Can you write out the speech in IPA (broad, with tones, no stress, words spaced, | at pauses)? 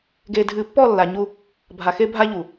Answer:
ɡeː˨dʱɨː˨pːɔ˦˨ lːa˨ɲu˦ | bʱa˨xe˦bʱa˦ʎu˨